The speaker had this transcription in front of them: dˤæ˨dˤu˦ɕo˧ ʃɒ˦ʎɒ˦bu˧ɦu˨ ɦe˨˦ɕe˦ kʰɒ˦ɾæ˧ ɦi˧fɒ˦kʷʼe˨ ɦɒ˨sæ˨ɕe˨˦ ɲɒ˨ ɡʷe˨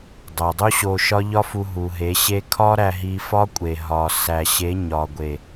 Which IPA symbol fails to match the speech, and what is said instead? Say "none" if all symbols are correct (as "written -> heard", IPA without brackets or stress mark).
b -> f